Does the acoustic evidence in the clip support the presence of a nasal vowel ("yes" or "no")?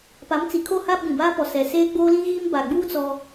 yes